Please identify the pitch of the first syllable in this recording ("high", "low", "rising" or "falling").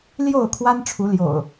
falling